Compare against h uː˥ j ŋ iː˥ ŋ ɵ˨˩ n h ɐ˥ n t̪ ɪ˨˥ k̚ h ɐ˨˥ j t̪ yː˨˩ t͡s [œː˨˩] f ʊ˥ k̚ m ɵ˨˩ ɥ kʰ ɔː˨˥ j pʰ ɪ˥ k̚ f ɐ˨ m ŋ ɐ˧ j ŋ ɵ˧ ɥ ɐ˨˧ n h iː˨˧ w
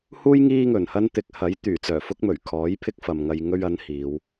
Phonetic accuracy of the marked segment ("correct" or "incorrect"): correct